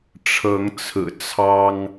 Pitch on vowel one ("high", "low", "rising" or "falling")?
rising